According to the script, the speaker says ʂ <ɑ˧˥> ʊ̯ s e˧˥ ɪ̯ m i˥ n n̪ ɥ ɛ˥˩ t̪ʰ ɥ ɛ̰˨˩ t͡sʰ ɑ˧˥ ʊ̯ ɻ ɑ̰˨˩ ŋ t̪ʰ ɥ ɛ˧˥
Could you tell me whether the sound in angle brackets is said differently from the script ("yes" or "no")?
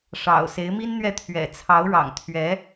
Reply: yes